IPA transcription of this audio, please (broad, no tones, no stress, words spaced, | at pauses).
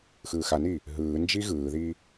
xɯːxaniː | ɦɯː nd͡ʒiɣɯːðiː